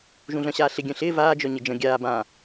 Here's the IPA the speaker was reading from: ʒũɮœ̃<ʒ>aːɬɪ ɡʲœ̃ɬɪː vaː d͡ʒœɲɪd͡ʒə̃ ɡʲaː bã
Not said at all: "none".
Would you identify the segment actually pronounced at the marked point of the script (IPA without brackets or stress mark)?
ɕ